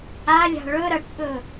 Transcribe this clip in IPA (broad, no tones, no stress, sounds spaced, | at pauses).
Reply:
a lʲ a̤ ɭ ɵ ɾ ɐ ʈ ɓ ɵ